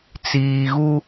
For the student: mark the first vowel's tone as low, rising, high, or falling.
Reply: low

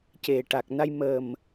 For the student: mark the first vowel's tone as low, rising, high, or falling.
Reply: low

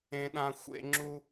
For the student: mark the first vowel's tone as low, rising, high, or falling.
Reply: low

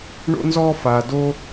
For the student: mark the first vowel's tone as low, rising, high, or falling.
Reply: high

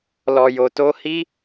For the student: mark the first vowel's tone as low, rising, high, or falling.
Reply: low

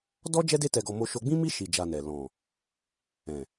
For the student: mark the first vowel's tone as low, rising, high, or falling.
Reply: high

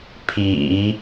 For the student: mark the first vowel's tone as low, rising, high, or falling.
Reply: low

